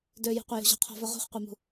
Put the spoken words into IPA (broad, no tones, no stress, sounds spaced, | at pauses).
d ø j ṳ qʷ ɐ j ṳ ʑ ɔ̤ qʰ ɔ̤ v œ ʁ ṳ χ qʷ ɛ m ṳ